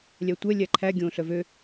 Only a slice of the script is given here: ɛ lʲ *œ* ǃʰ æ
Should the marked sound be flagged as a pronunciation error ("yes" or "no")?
yes